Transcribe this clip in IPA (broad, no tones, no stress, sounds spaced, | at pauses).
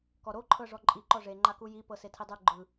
k ɔ ɾ o ǃʰ ɤ ʐ ɔ ǃʼ i ǃ ɔ ʐ e ŋ͡ǃ a k u j i p ɤ s e tʰ i dˤ u ɡ͡ǃ ɯ